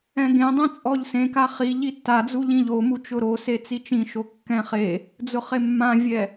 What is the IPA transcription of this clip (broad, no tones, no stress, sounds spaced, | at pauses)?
ɛ̃ ɡ ẽ dˤ ẽ t͡sʼ ɔ ʎ s ẽ k a χ i ʎ i tː a d͡z u ʎ ĩ ʎ o m u t͡ʃ ʊ ɾ o s e t͡s i t͡ʃ ĩ ʃ o kː ɛ̃ χ e | d͡z ʊ χ e mː ã vʲ ɛ